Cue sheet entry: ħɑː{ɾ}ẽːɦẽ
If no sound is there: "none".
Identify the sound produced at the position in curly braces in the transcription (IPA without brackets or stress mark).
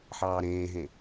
ɾ